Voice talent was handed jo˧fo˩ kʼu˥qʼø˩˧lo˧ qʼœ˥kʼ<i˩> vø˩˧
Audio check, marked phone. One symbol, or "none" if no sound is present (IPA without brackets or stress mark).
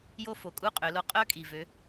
i˩